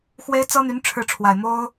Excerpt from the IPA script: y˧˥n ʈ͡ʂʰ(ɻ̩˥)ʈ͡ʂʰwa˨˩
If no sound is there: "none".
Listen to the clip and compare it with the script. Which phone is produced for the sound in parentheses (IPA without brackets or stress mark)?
ɻ̩˥˩